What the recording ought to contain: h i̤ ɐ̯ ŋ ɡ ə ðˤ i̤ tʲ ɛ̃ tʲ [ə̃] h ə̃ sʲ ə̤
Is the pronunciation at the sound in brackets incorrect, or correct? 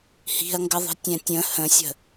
correct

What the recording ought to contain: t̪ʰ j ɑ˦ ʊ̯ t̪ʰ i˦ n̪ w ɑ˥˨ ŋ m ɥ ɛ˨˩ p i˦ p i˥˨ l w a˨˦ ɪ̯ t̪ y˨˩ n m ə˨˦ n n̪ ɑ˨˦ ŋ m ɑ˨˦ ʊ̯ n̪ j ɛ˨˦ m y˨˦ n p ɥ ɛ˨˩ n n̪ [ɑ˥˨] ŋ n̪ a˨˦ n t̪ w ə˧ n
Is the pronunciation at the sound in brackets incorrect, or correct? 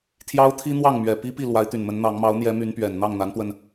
correct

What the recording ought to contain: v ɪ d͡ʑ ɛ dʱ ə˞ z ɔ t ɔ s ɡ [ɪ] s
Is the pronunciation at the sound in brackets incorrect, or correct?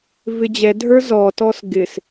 correct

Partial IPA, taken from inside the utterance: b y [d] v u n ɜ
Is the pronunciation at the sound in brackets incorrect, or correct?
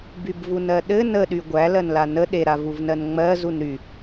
incorrect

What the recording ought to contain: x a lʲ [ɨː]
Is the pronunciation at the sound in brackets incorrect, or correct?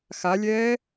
incorrect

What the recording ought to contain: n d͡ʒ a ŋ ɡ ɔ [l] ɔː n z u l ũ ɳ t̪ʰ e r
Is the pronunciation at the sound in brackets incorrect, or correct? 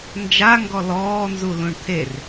correct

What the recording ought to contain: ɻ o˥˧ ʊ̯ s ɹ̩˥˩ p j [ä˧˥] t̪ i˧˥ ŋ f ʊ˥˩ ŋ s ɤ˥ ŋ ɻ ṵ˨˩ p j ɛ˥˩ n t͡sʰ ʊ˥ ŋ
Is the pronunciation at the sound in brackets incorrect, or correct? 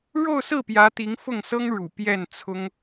correct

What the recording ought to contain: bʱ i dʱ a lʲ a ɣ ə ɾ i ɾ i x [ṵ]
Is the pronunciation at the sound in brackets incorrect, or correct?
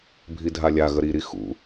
correct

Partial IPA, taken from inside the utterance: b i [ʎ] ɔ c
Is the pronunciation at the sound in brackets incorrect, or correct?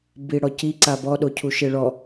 incorrect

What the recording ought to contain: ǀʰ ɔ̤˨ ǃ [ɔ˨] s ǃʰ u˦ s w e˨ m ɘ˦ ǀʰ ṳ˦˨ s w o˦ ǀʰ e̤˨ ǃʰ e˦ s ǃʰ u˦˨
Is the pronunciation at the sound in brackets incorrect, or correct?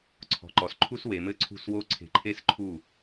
correct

